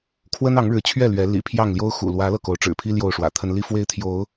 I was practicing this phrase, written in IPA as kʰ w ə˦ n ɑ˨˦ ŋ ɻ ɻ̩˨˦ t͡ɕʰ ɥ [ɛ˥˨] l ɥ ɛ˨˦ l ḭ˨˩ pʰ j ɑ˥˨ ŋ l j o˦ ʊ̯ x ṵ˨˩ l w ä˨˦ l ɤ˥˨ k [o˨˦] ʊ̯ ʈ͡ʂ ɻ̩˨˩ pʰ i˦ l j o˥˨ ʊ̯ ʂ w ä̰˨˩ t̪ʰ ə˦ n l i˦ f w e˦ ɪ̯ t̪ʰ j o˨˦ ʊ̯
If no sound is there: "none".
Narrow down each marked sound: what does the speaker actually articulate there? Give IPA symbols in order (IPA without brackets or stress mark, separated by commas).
ɛ˥˨, o˨˦